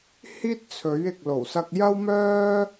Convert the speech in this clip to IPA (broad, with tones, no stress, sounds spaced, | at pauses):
h iː˥ t̚ t͡sʰ ɵ˨˥ ɥ ɪ˨ k̚ l o˨˩ w s ɐ˧ k̚ j ɐ˥ w m œː˥